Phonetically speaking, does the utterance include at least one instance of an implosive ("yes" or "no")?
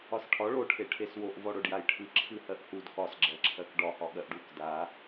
yes